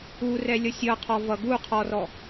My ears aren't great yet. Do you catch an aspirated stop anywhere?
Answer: yes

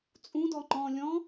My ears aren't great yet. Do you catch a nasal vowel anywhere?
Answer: yes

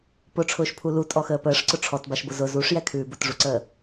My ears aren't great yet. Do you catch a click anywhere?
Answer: yes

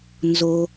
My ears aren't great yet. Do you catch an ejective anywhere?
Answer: no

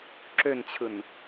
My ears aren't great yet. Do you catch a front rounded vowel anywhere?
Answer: yes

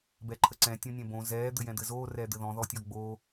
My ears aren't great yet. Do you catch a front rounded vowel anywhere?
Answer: no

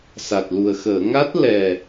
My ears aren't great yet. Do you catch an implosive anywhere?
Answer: no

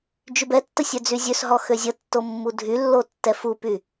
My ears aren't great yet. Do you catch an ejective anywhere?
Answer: no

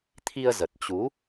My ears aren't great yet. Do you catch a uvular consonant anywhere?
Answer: no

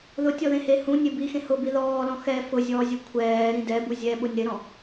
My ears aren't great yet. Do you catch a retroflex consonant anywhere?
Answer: no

